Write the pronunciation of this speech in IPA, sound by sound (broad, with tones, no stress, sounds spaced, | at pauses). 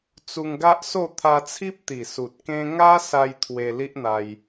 t͡s u˧ ŋ ɡ a˦ ʔ s o˥˧ t̪ʰ a˧ t͡sʰ i˦ p̚ t̪ i˨˩ s u˨ t̚ k ẽ˦ ŋ a˦ s a˧ j t̪ʰ w e˧ l i˦ ʔ n̪ a˧ j